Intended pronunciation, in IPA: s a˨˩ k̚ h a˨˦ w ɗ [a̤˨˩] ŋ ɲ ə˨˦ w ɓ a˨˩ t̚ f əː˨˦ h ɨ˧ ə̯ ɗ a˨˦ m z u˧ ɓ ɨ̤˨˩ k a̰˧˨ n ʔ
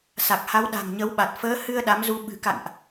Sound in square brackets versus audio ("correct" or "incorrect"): correct